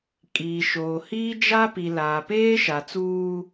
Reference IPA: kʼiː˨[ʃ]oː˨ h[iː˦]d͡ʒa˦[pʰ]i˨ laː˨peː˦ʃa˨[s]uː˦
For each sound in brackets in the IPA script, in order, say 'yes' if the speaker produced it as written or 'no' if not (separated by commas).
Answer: yes, yes, no, no